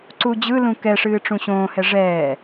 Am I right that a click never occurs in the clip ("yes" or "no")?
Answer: no